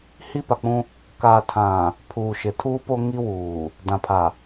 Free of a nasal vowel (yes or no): no